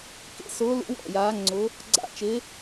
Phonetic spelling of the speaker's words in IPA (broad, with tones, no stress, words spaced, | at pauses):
kḛ˧˥sʊː˧˥lṵ˧˥ wɔ̰˦˨jaː˧˥ŋ͡ǀʊ˧˥ | ɡ͡ǀa̰˦˨t͡ʃɪ˧˥